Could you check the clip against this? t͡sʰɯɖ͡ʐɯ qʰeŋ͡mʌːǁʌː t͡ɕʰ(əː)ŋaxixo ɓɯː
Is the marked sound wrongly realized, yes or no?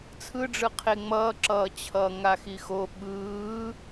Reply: yes